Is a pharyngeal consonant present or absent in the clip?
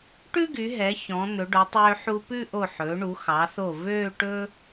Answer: present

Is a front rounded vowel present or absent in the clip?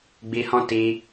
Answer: absent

